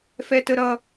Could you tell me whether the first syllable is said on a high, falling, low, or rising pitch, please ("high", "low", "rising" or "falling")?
high